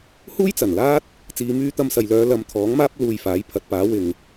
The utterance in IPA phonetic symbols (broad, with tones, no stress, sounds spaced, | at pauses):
h uː˥ j t͡s ɐ˨˩ n l aː˥ t̚ | t͡s iː˨˧ m yː˧ t̪ ɐ˧ m s ɐ˨ j l œː˨˧ l ɐ˨˧ m t̪ʰ ɔː˨˥ ŋ m aː˥ p̚ l uː˧ j f aː˨˥ j pʰ ɐ˨˥ t̚ p aː˨˥ w ɪ˨ ŋ